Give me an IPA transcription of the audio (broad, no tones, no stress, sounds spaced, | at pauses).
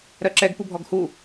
ɾ ɜ ǁ ɛ ɡ p u bʱ ɔ ɡ h u